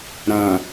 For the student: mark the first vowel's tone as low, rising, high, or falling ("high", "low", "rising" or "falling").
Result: low